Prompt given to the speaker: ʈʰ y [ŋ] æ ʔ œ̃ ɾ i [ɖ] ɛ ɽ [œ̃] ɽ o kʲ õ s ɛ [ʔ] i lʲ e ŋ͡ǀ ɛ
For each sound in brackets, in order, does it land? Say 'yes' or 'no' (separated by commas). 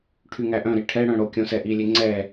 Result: yes, no, yes, yes